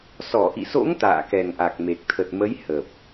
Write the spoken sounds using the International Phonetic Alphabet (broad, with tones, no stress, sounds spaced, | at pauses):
s ɔ˧˩ ʔ ḭ˧˨ s o̰˧˥ ŋ t̪ a̰ː˧˨ k ɛ˨˩ ŋ ʔ a˨˩ k̚ m e˨˩ k̚ t̪ʰ ə˨˩ t̚ m ə˨˦ j h ə˨˩ p̚